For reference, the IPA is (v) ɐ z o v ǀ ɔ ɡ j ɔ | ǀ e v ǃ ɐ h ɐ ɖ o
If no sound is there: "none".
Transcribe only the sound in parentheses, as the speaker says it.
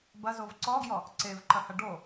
b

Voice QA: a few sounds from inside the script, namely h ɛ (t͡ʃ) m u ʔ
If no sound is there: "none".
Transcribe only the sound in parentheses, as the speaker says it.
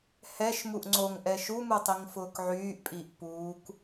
ʃ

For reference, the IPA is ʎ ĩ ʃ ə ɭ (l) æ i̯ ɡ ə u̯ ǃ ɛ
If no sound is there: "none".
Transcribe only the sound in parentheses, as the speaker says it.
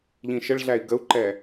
ɮ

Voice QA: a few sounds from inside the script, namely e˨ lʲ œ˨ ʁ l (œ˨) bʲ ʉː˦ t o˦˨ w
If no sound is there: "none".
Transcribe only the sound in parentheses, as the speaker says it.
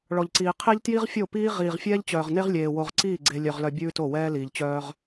œ˨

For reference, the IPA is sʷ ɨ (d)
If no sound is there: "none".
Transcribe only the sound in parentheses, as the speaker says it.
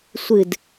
d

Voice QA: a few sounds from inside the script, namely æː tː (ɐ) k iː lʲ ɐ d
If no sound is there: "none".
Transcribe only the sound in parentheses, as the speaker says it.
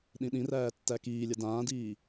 æ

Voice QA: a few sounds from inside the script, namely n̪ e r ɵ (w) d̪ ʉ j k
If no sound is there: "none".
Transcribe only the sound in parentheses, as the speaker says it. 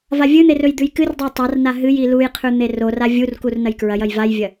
j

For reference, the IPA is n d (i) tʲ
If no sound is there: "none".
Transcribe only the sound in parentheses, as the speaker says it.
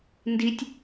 i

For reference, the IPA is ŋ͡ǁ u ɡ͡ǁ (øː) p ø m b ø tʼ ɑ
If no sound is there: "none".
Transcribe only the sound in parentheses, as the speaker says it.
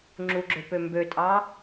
ø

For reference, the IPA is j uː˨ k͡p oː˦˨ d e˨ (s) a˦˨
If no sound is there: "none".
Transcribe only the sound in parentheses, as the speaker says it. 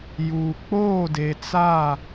t͡s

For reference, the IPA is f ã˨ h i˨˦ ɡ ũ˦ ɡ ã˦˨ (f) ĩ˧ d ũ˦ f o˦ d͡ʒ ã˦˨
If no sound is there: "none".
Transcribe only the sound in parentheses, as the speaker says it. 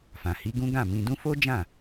m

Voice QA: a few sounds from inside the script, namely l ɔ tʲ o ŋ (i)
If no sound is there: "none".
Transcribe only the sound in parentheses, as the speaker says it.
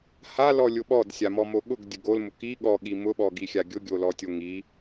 i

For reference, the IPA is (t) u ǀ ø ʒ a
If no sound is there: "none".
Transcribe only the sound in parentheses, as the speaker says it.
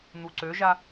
n̪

